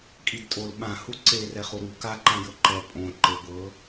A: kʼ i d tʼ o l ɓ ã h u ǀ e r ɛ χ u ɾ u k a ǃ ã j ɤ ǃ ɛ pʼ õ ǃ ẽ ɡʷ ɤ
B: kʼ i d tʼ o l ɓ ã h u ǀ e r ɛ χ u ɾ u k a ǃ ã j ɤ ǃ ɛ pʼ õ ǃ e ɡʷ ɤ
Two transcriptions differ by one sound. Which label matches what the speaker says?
B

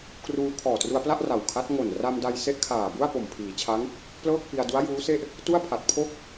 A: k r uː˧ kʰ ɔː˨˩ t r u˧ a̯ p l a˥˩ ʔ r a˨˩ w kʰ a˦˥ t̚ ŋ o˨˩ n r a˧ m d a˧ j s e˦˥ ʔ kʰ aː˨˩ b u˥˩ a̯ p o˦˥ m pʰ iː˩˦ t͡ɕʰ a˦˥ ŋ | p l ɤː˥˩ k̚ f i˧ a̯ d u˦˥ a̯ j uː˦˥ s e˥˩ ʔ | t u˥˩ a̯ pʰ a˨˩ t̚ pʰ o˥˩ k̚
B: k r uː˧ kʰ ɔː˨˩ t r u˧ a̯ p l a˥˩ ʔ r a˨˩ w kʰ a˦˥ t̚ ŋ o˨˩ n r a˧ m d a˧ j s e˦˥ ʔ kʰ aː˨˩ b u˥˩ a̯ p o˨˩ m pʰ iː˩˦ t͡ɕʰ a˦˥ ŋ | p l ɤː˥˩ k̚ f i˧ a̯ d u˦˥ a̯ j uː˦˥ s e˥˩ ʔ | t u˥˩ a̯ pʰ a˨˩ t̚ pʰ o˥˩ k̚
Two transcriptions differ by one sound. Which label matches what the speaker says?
B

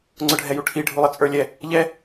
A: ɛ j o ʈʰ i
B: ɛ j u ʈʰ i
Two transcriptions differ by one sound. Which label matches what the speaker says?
B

